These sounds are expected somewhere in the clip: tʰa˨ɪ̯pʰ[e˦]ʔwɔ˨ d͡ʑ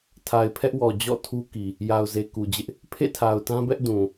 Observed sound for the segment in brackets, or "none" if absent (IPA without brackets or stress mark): ɛ˦